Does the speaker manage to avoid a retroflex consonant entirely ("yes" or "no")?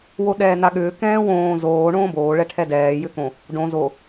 no